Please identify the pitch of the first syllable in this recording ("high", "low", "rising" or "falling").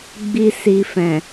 low